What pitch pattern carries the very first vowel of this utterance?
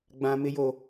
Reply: high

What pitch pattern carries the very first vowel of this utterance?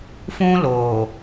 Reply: high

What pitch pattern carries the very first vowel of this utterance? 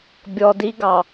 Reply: low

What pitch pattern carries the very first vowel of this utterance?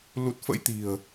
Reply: low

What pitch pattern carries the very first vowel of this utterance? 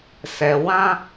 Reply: low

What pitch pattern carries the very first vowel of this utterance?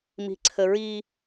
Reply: high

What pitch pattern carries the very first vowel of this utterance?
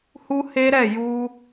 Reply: high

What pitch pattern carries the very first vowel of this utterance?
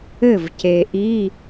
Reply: falling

